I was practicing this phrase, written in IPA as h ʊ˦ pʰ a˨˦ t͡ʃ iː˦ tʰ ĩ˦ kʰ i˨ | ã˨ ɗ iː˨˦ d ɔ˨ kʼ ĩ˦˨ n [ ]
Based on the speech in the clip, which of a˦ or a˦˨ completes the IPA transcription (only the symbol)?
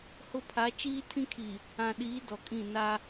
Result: a˦